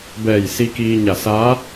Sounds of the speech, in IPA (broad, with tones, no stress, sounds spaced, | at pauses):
b ɛː˧˩ j s i˧ k iː˧ ɲ a˧˩ s aː˧˥